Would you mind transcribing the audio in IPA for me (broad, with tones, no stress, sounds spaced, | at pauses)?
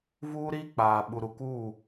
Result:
v uː˦ ɾ iː˦ k͡p aː˨ ɓ u˨ ɾ u˨ k uː˦˨